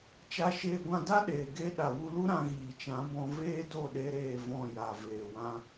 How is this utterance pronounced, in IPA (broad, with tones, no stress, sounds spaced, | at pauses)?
t͡ʃ a˧ ʃ eː˧ ɡʷ ã˧ d a˦ ɗ eː˨ ɡ e˦ ɗ a˨ w u˧ l u˦ ɾ ã˧ ɣ iː˨ t͡ʃ ã˨˦ b ɔ̃˧ v eː˦ d o˦˨ ɗ e˦ ɾ eː˦˨ v ɔ̃˦˨ j a˨ v eː˨ w ã˦